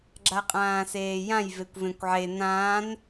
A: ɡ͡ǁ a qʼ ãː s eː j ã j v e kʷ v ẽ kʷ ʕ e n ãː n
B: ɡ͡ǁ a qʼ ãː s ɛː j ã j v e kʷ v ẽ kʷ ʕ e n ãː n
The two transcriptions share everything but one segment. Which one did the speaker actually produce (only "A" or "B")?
A